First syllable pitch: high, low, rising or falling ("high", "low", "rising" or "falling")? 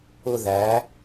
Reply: high